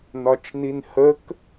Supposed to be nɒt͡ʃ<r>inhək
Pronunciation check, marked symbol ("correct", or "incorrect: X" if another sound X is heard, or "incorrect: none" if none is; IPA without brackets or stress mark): incorrect: n